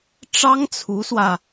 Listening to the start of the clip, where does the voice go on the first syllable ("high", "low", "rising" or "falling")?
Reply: high